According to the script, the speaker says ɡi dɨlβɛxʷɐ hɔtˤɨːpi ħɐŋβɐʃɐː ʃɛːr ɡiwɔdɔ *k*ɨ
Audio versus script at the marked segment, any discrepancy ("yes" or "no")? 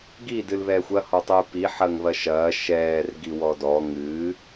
yes